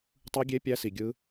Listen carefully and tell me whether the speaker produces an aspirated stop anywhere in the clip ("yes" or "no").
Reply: no